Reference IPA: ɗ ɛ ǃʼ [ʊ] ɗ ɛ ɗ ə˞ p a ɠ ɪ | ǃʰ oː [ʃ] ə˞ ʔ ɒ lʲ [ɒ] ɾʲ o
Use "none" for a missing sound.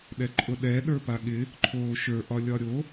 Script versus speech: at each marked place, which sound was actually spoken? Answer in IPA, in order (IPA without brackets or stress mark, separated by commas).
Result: ʊ, ʃ, ɒ